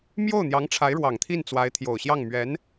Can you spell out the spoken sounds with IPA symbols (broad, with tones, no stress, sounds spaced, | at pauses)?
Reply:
m j o˥˩ ʊ̯ n̪ j ɑ˧˥ ŋ ʈ͡ʂʰ a˧˥ ɪ̯ ɻ w ɑ˨˩ ŋ t̪ʰ i˥˩ n t͡s w a˧˥ ɪ̯ t̪ʰ j o˨˩ ʊ̯ ɕ j ɑ˥˩ ŋ m ɥ ɛ˧˥ n